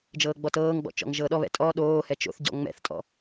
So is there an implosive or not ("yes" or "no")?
yes